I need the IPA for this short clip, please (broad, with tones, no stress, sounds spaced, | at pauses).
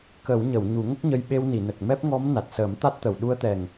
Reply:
k ə˨˩˦ w ɲ ə˨˩˨ w ɲ u˨˩˦ ŋ ə˦˥ k̚ ɲ ə˧ j ɓ e˧ w n i˨˩˨ n ə˨˩ k̚ m ɛ˦˥ p̚ ŋ ɔ˧˥ m n a˨˩ t̚ s əː˨˩˦ m t̪ a˦˥ t̚ t̪ ə˨˩˨ w ɗ u˧ ə̯ t̪ ɛ˨˩ ŋ